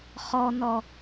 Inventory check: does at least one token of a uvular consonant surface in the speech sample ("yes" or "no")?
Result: yes